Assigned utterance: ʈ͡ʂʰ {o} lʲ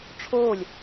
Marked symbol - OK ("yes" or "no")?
no